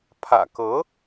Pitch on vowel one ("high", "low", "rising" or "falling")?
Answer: low